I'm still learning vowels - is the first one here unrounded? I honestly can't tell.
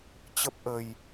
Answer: yes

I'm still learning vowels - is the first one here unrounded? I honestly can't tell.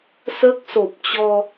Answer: yes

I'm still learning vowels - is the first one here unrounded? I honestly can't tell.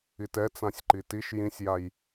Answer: yes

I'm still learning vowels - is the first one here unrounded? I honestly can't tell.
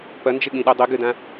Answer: yes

